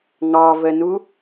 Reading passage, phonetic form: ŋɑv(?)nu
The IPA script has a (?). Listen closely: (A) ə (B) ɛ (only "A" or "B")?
A